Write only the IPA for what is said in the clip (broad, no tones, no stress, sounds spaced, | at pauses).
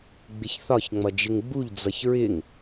ɡ͡b ɪ ç θ ɒ ç ŋ͡m ʌ d͡ʒ ɪ ŋ ɡ͡b u ʎ d͡z ʌ ç ɹ ɪ ŋ